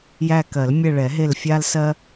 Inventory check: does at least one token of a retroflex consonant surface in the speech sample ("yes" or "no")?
yes